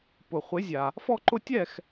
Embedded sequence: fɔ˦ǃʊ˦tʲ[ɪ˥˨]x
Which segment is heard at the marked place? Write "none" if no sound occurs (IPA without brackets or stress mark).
ɛ˥˨